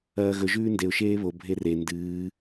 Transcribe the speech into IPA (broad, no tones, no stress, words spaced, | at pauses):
ɐːɣɵ ʒʉːndeʊ̯ ʃeːβo bʱere ndɨː